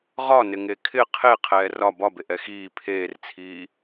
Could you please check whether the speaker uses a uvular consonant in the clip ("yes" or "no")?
yes